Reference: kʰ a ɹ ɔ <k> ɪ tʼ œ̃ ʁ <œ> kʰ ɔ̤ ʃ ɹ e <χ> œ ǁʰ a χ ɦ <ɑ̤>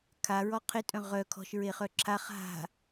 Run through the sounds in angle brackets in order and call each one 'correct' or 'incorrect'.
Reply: incorrect: qʰ, correct, correct, incorrect: a̤

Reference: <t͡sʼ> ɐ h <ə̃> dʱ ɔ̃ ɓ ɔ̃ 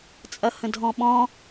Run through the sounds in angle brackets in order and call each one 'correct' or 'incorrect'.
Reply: correct, correct

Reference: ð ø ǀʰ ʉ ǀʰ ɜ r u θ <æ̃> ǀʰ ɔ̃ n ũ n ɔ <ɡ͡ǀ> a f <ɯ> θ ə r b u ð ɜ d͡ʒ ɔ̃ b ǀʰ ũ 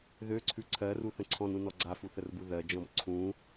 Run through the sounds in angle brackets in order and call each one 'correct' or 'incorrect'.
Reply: incorrect: ə̃, correct, incorrect: u

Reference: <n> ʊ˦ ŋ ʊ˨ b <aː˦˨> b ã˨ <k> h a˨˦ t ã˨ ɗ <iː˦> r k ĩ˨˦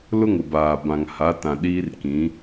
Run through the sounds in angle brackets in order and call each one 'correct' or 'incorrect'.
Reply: incorrect: l, incorrect: aː˨, incorrect: ŋ, correct

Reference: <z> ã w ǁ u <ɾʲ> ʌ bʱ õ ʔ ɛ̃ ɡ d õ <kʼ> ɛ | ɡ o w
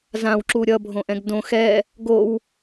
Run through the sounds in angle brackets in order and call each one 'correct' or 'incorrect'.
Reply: correct, correct, incorrect: x

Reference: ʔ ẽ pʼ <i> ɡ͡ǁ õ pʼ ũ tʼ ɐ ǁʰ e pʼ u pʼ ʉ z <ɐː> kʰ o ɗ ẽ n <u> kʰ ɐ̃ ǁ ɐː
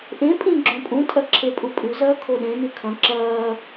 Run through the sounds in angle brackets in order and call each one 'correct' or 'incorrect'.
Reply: incorrect: ĩ, correct, incorrect: ʉ

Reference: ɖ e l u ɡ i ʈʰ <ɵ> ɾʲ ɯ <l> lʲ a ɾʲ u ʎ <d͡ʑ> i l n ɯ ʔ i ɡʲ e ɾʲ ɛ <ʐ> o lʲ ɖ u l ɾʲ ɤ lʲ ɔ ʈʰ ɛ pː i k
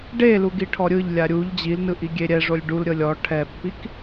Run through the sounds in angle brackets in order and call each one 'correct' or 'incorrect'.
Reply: incorrect: ɔ, incorrect: ʎ, correct, correct

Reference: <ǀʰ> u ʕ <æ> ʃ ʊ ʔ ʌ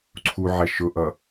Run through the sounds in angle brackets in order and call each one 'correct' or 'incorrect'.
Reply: correct, correct

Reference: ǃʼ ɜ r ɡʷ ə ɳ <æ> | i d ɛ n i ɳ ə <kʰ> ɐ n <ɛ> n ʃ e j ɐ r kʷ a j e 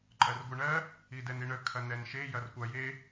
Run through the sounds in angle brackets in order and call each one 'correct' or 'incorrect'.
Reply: incorrect: ɜ, correct, correct

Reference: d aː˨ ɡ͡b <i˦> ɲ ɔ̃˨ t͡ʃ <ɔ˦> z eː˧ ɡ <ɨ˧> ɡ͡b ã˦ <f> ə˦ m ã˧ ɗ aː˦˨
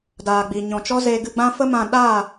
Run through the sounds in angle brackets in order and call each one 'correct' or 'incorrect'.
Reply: incorrect: i˨, correct, correct, correct

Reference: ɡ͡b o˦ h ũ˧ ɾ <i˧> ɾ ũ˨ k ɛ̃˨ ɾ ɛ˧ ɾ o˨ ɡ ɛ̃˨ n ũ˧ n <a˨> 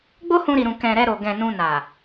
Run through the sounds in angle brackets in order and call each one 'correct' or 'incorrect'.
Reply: incorrect: i˨, correct

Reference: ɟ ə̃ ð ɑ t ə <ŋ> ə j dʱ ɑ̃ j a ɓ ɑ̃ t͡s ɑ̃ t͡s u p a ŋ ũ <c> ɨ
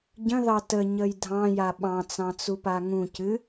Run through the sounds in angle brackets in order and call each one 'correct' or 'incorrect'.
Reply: incorrect: ɲ, correct

